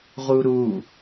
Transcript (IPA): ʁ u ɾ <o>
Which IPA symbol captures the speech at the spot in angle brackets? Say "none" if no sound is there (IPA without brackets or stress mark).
u